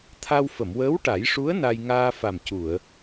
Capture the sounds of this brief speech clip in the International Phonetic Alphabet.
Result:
t̪ʰ a˧ w f ə˨˩˨ m w əː˧˥ w ʈ a˨˩˦ j ʂ u˧˥ ə̯ n a˧ j ŋ aː˧ f a˨˩ m c u˨˩˨ ə̯

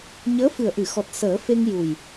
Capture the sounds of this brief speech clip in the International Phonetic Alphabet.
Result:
ɲ əː˧˥ f ɨ˨˩ ə̯ ʔ ɨ˨˩˨ x ɔ˨˩ t̚ s əː˨˩˦ f e˧ ŋ j u˨˩ j

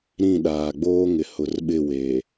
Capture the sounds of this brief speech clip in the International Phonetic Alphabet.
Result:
ɾ ĩ˦˨ ɗ aː˨ ɡ͡b oː˦ ŋ ɪ˨ h ʊ˨ r ɓ ɪ˦˨ w eː˨

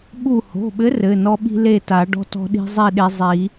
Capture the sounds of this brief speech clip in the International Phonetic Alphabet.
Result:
ɓ u˧˩ h o̤˩˧˩ ɓ ɘ˨˥ r ɘ˩˧˩ n ɔ˦ ɓ i̤˦ l e˥˨ t a˨˩˦ ɖ ɔ̤˦ t ɔ̤˦ ɗ i̤˦ zˤ i˥˨ ɗ e˦ zˤ i˨˩˦

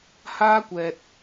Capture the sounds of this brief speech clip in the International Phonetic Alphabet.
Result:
h aː˥ kʷ ɛː˧ t̚

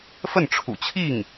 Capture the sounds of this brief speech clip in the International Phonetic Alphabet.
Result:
f ə˥˩ n ʈ͡ʂʰ ṵ˨˩ t͡ɕʰ i˥˩ ŋ

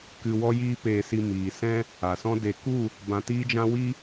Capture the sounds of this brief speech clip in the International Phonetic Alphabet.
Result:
k ɨ˧ w ɔ˦ j iː˦ p eː˧ s i˧ m iː˨ s ɛ̃˦ | a˨ s ɔ̃˦ d e˧ k u˦˨ | b ã˧ t iː˦ d͡ʒ ã˦ w i˦

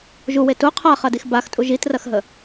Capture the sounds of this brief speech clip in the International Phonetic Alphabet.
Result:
ʒ u w e t u qʰ a χ ɐ d i x b a x tʼ u ʒ i t r ɐ x ɦ ə

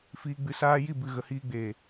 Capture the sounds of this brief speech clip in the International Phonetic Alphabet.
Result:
f iː˧ ɡ͡b ɨ˧ s aː˧ j i˦˨ b ɨ˨ ɣ ə˨ h iː˧ ɡ͡b eː˨

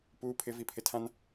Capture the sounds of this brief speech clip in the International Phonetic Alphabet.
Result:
p uː˦ pʰ ɪ˦ v i˦ pʰ ɪ˦ tʰ ã˦ n

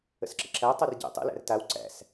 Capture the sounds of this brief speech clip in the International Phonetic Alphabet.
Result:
ə̰ s ǁ ə̰ ǁ æ tˤ o r ɟ æ̰ tˤ ə̰ l æ̰ r t a w ǀ æ̰ s

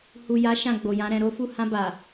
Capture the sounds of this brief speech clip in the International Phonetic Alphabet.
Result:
h u˨ j a˨˦ ʃ ã˦˨ ɡ͡b o˨ j ã˨˦ ɾ ɛ̃˧ ɾ o˦ f u˦˨ h ã˧ b a˨

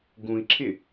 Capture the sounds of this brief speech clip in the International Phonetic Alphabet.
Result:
ɡ ũ i̯ ǁʰ ɪ

